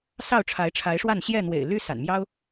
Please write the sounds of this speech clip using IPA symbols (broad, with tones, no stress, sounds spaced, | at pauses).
s ɑ˥˨ ʊ̯ ʈ͡ʂʰ a˨˦ ɪ̯ ʈ͡ʂʰ a˨˦ ɪ̯ ʂ w a˥˨ n ɕ j ɛ˥˨ n̪ w ḛ˨˩ ɪ̯ l y˦ s a̰˨˩ n m j ɑ˦ ʊ̯